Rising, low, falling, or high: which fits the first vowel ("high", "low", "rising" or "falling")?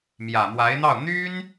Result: low